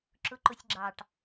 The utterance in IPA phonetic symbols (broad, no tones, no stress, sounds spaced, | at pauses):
ǁ ʊ ǃ ʊ sʲ ɡ͡ǁ ɑ ʈ